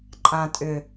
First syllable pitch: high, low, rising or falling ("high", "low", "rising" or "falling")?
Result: low